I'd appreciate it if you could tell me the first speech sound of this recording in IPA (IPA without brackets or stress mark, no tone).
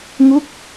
ŋ